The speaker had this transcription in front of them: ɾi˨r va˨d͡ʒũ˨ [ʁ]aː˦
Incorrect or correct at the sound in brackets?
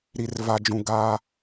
incorrect: ɡ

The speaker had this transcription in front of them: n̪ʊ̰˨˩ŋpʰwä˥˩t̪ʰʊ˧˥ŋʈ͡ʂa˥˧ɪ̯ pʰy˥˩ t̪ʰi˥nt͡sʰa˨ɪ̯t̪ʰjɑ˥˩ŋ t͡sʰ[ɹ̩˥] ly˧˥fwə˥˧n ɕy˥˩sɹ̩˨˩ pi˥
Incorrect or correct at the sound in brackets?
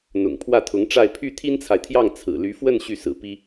incorrect: ɹ̩˨˩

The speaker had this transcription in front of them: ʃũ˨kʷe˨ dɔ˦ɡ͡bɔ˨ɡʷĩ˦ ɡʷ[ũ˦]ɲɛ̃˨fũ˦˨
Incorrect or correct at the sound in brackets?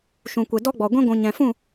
incorrect: ũ˨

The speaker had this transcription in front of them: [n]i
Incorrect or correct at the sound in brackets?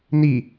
correct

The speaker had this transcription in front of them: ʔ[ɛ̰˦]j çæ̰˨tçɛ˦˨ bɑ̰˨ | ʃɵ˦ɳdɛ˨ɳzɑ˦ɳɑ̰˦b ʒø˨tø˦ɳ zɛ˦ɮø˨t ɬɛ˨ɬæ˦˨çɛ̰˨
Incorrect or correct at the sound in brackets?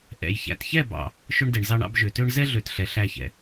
incorrect: ɛ̰˨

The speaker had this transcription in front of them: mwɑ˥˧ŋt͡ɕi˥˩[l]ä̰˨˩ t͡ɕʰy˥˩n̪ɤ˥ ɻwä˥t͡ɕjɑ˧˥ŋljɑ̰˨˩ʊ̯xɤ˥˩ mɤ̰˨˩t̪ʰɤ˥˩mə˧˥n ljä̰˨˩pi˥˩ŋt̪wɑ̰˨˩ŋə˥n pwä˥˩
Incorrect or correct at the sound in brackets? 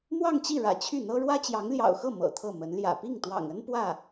incorrect: ɻ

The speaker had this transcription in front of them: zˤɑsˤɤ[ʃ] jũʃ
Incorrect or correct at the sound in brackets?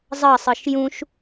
correct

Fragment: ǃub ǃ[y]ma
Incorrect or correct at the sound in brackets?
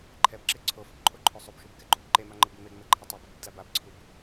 incorrect: e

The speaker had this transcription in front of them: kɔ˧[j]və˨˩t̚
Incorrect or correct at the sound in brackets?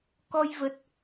correct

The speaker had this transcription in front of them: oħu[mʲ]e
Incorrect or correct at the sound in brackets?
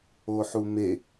incorrect: m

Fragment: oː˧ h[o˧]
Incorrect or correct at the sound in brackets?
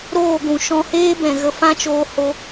correct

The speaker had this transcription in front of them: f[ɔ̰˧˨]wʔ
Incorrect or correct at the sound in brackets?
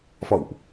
correct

